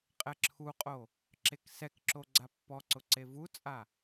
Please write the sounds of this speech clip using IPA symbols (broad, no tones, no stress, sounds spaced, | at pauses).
qʼ ɛ ǁʰ u qʼ o | ǁ e k s ɛ k ǁ o ɡ͡ǀ a pː ɔ ǀ ʊ ǀ e v u t͡sʼ a